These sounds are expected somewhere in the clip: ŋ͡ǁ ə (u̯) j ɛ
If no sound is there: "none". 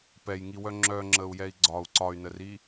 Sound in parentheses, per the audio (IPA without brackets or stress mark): u̯